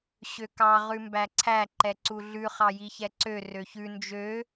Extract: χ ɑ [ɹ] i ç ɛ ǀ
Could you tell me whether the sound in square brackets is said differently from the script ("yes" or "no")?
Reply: yes